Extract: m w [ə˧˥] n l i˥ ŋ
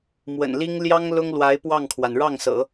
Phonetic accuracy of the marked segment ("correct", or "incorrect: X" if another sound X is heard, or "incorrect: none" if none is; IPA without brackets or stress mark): incorrect: ə̰˨˩